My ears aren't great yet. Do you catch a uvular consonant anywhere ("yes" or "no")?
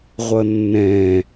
yes